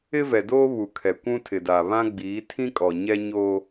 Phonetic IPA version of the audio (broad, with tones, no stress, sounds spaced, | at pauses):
ɪ˦ v ɛ˨ d oː˦ β u˨ kʰ ɛ˨ kʷ ũ˦ tʰ ɪ˨ d aː˨ β ã˦ ɡ͡b iː˨˦ tʰ ĩ˦ kʼ ɔ˨ ɲ ɛ˦ ɲ oː˦